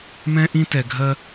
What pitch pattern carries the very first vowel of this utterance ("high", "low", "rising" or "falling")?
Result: high